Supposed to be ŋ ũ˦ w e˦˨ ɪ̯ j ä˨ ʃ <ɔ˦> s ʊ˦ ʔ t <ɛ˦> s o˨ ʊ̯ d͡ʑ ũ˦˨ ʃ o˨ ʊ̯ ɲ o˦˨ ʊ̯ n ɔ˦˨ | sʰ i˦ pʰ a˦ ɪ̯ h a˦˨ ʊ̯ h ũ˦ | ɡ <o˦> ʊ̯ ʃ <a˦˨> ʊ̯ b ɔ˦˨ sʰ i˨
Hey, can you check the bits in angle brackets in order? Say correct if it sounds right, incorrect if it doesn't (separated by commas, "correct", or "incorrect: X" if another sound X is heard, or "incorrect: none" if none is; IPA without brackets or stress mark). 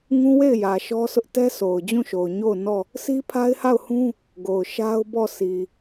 correct, correct, incorrect: o˨, incorrect: a˦